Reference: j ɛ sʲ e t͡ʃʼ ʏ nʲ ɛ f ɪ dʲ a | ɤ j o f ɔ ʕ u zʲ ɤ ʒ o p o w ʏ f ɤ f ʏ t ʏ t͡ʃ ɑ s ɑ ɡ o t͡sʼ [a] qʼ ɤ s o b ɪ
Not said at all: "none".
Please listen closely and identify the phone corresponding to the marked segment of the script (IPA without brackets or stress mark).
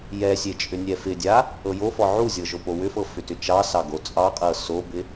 ɑ